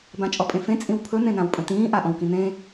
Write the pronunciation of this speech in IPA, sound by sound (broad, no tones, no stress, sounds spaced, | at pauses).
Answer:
b ã t͡ʃʼ ɔ pʼ ẽ f ẽ t͡sʼ ĩ w pʰ ɵ n̪ ẽ n ã w pʼ ə̃ t ĩː ʔ a ʔ ɔ̃ w k ĩ n̪ ẽː